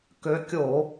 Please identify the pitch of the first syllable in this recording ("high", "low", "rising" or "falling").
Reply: rising